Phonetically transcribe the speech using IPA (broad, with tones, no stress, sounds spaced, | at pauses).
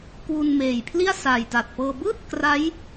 k w u˧ n m eː˨˩ j pʰ l i˥˩ a̯ s a˨˩ j t a˨˩ t̚ p ɤː˧ b ɯː˥˩ t̚ k r a˦˥ j